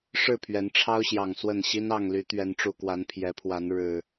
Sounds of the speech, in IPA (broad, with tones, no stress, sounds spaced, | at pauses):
ʂ ɻ̩˥˨ pʰ ɥ ɛ˨˦ n ʈ͡ʂʰ ɑ˦ ʊ̯ ɕ j ɑ˨˩ ŋ s w ə˥˨ n ɕ i˦ n ɑ˥˨ ŋ l y˨˦ t̪ ɥ ɛ˨˦ n ʈ͡ʂ u˨˩ k w a˨˦ n pʰ j ɛ˨˦ pʰ w a˨˦ n ɻ ɻ̩˨˩